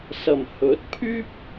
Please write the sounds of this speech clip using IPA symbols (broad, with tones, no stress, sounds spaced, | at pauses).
s ɐ˨˩ m h ɵ˨˥ t̚ pʰ yː˥ p̚